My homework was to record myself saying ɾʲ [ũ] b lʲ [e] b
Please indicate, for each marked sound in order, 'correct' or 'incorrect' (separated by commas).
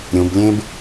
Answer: correct, incorrect